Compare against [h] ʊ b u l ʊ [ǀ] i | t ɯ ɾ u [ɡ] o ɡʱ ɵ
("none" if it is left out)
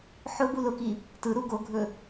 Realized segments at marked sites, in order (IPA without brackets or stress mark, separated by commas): ħ, k, ɡ